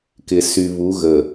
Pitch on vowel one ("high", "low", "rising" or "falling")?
low